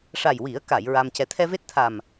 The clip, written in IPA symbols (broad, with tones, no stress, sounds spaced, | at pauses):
ʂ a˨˩ j w i˨˩˦ ə̯ k a˨˩˨ j ɹ a˧ m c ɛ˧˥ t̪ʰ ɛ˧ v e˦˥ t̚ t̪ʰ a˨˩ m